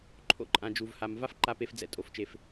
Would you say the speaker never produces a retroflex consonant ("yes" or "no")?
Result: yes